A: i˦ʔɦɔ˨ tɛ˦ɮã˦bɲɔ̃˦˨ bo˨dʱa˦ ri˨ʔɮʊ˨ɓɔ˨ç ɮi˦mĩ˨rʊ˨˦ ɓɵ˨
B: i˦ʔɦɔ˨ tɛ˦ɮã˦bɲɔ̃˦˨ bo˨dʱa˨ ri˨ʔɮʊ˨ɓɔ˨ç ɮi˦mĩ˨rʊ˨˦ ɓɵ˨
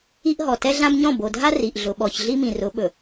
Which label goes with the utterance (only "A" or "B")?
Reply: A